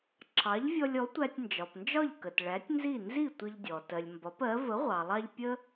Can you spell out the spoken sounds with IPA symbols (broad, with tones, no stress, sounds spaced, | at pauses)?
ǁʰ ɑ˩˥ ʎ vʲ ɔ˧ lʲ ɔ˩˥ tʷ æ˧ tʲ n d͡ʒ ɒ˩ p n d͡ʒ ɒ˥˩ ʎ k ə˩ t ɭ æ˩˥ tʲ n z i˥˩ n z i˥˩ tʷ ə˧ ʎ dʲ ɔ˩ t ɜ˩ lʲ m b ɒ˩˥ p ɜ˩˥ v ə˩˥ ʁʷ ɑ˩ lˠ ɑ˧ ʎ pʲ ə˥